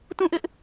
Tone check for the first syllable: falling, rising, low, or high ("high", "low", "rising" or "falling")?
falling